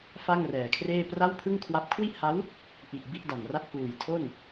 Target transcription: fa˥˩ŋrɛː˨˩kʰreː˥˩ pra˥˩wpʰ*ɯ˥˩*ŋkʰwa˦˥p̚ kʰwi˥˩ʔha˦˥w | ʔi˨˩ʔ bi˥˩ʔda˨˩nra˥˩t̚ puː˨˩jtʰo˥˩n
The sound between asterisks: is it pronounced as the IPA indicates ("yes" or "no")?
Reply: yes